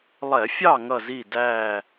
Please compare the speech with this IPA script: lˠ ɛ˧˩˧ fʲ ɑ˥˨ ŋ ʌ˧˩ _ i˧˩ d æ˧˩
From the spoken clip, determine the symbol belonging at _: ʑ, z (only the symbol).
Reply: z